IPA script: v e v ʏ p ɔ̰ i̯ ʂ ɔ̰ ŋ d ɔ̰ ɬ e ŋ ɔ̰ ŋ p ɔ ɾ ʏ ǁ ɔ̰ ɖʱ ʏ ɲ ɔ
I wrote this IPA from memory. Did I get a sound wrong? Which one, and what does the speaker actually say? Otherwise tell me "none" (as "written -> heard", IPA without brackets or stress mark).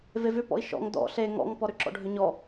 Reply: ʂ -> ʃ